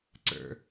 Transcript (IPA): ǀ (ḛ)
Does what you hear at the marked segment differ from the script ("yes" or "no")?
yes